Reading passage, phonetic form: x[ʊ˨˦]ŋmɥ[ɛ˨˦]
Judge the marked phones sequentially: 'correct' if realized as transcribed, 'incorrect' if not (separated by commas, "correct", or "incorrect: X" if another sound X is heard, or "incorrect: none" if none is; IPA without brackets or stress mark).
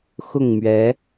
incorrect: ʊ˥˨, correct